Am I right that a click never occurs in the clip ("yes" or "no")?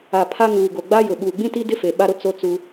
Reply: yes